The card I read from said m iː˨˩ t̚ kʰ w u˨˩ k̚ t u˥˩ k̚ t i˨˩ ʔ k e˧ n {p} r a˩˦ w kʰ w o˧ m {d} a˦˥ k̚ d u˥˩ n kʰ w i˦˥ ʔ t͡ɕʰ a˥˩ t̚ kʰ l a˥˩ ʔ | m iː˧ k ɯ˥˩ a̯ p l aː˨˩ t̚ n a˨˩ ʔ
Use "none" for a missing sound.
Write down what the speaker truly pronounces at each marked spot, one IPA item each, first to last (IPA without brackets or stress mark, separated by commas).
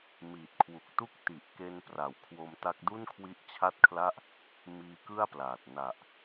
p, t